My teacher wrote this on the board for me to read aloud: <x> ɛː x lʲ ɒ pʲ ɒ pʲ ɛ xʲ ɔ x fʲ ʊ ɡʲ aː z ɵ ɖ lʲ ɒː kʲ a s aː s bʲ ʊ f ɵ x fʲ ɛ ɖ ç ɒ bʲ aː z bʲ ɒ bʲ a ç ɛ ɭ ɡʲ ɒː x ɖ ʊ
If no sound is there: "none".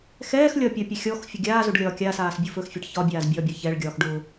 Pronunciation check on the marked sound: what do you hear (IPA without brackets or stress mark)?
x